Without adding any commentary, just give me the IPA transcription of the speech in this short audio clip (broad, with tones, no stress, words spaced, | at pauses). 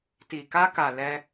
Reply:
ti˨ka˧ka˨ lɛ˧